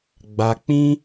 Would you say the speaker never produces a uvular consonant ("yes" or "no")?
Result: yes